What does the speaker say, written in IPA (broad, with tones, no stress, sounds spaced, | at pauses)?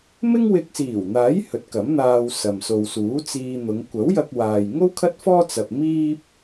m ɪ˥ ŋ w ɪ˧ k̚ s iː˨˩ w n̪ aː˨˥ j h ɵ˨˥ t̚ k ɐ˨˥ m n̪ aː˧ w s ɐ˨ m s o˨ w s uː˨˥ t͡s iː˧ n̪ ʊ˨˧ ŋ kʷ ɐ˨˥ w j ɐ˧ k̚ w aː˨ j ŋ o˥ w kʰ ɐ˥ t̚ f ɔː˥ t͡s ɐ˧ p̚ m iː˥ p̚